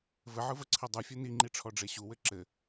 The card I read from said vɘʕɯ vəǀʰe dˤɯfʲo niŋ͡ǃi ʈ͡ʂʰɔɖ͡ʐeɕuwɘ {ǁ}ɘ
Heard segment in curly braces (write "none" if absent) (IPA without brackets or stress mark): ǁ